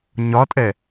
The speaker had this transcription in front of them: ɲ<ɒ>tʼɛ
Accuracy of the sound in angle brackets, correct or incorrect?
correct